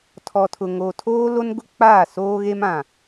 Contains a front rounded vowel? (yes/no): no